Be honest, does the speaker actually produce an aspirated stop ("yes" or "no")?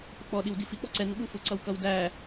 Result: no